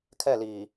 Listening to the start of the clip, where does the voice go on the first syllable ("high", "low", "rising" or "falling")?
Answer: falling